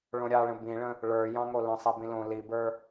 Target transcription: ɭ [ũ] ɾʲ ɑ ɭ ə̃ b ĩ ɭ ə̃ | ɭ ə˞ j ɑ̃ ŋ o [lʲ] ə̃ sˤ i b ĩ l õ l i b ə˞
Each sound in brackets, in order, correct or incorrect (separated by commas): incorrect, incorrect